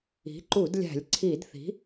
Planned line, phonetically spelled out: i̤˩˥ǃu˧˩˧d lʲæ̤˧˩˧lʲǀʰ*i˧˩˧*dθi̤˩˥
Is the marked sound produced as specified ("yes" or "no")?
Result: yes